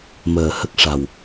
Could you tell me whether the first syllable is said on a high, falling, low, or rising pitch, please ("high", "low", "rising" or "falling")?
low